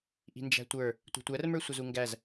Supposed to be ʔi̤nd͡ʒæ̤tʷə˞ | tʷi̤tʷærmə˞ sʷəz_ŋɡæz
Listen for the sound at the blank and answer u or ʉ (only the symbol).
u